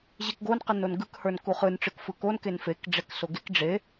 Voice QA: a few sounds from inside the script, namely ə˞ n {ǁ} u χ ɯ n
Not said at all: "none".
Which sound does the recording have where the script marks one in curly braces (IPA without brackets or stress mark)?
k